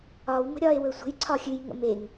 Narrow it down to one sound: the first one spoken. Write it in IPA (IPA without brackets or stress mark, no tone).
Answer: ɒ